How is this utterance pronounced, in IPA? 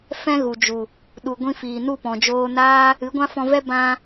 fɛ̃˦ɣu˨d͡ʒu˨ | ɗu˨ɡʷĩ˧fiː˨ nu˦˨pɔ̃˨d͡ʒoː˧naː˦ | ɨ˨˦ɡʷã˦fɔ̃˧vɛ˦ bã˧

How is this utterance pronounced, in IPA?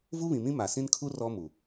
vu˦βĩ˨mĩ˦ ma˨sĩ˦nkʰu˦ rɔ˦mu˨

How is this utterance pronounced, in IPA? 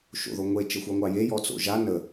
ʃo̰ðoŋʷe t͡ʃəxʷɑŋʷɑje jɔt͡so̰ʒa nə

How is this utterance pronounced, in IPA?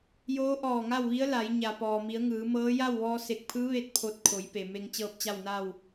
joː˧˥ʔɔː˧˩ŋa˥˨wʋi˧˥ə̯ la˩˧j ɲa˩pɔː˩mi˩˧ə̯ ŋɯː˩˧mɤː˧˥ ja˥˨wʋɔː˧se˧˩k̚pʰɯː˧˥ ʋe˥˨t̚pʰo˧t̚ kʰo˩˧jpe˩ me˧ŋt͡ɕɤː˥˨p̚t͡ɕa˥˨wna˥˨w

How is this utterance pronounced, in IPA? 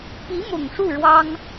pi˧˥mʊ˨˩ŋ ʂu˥˩ ɻwɑ˥ŋ

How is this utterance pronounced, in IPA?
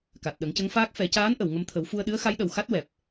ka˨˩t̚ɗə˨˩˦ŋcə˧˥ŋfaː˦˥k̚ fɛ˨˩˦caː˧˥nʔə˨˩˨w ŋə˧mt̪ʰə˨˩˦w fu˧ə̯ɗɨ˧˥ə̯ xa˧˥jɗə˨˩wxa˦˥t̚ wɛ˨˩p̚

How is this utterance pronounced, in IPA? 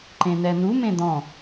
ǃẽnɛnu mẽd̪ɔ̃

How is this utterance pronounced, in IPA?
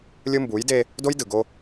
lʲɯ˦mbu˨˦jde˦ | do˦jdɯ˨ɡo˦

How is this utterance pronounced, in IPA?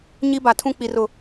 ɲi˦ba˨tʰũ˦ k͡pi˨r ʊ˨

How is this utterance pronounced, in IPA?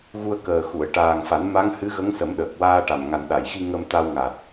ɣu˧ə̯kəː˨˩xu˨˩˨ə̯ ʈaː˨˩ŋfa˨˩˦n ma˧˥ŋhɨ˧˥ɣə˧˥ŋsə˨˩˦m ɗəː˨˩k̚waː˧ʈa˨˩m ŋa˨˩nɗa˨˩˨jxi˧ ŋə˧mt̪a˧wŋa˨˩t̚

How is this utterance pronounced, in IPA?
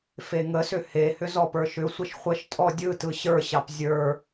feŋəsʏ hehʏz ɔpə˞ʃʏsʷəʃ χʷəʃtʼɔ dʲɯtɯ ɕə˞ɕɑp zʲə˞

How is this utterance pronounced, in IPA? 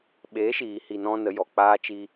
ɓe˨˦ʃiː˨ hi˧nɔ̃˦nə˨˦ jɔ˨ k͡paː˦t͡ʃi˦

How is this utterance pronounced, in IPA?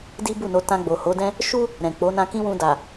di˦bu˦˨no˧ tã˧ɡ͡bo˨ho˨˦dɛ̃˦ | ʃu˦ | ɾɛ̃˨k͡po˨˦ nã˧kĩ˦wũ˧ da˨

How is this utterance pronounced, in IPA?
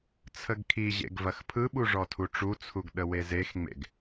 t͡sʰəɡkʰiʑḛɡ vɐxpʰɯɓu ʐɔtʰuʈ͡ʂut͡sʰuɡ ɗəwezexŋ͡mḛɡ

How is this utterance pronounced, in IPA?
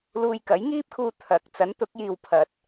luː˧jkɐ˨˥jŋiː˥p̚kʰuː˧ t̪ʰɐ˨˥k̚ t͡sɐ˨˥nt̪ʊ˨˥k̚jiː˨w pʰɐ˨t̚

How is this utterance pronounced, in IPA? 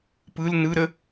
pɯl nɯɾə

